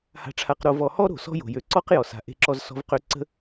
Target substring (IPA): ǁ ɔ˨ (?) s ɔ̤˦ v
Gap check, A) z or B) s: A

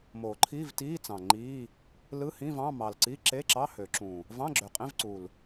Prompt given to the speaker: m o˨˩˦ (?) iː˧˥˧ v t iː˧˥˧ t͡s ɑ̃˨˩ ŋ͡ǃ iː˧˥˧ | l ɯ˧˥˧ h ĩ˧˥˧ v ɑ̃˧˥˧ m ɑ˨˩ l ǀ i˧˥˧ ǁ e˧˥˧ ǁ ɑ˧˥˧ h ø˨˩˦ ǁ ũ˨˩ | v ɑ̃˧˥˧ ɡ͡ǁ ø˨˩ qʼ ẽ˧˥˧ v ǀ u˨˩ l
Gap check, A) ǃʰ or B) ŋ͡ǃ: A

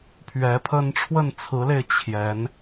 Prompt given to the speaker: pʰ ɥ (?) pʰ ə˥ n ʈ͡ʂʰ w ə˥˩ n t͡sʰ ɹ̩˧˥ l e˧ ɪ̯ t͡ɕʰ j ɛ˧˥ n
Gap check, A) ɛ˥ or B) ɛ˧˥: B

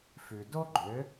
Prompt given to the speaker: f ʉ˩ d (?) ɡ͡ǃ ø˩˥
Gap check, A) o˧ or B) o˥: B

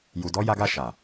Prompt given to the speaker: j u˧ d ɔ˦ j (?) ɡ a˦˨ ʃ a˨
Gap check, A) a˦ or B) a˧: A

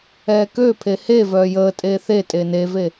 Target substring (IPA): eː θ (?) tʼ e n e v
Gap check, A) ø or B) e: B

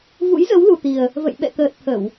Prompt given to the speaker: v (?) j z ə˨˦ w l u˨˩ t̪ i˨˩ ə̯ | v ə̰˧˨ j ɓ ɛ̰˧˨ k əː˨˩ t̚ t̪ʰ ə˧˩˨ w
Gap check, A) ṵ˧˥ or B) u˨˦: A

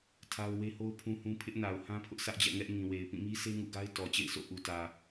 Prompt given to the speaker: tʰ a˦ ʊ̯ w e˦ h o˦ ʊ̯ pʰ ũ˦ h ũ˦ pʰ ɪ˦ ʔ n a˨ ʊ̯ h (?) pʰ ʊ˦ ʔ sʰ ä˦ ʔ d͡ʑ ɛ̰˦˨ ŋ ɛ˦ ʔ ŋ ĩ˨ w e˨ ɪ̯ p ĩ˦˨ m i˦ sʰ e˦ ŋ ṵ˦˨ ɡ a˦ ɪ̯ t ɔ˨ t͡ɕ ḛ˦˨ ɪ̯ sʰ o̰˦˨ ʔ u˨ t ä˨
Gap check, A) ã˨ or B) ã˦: B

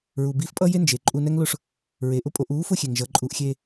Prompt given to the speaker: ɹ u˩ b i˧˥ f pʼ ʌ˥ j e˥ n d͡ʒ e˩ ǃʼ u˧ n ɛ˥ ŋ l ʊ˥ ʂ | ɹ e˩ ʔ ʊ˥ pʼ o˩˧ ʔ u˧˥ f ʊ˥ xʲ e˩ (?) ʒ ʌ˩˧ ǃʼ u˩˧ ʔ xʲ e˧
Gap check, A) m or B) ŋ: B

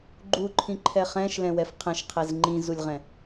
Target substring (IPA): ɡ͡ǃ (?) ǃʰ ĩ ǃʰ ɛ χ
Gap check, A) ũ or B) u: B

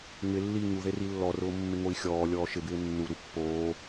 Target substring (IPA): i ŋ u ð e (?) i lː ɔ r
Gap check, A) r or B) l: A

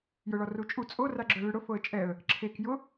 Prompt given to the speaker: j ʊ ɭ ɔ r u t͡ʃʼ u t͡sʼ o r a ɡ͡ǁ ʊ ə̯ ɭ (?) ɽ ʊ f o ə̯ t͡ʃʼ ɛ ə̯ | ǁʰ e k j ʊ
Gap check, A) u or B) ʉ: B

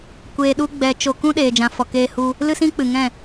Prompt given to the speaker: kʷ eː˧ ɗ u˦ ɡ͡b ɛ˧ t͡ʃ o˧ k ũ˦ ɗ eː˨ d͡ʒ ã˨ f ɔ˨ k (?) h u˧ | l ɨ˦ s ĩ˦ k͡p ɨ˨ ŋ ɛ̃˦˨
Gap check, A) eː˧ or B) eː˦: A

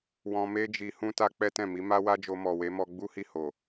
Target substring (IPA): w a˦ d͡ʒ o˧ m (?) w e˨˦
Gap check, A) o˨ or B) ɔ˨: B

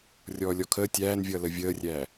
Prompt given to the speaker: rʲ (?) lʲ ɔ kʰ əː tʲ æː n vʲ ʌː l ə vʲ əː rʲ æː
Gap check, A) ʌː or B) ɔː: B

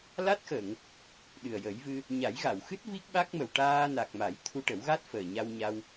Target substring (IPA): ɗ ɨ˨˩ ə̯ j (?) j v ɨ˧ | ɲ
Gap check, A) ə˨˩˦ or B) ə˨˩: A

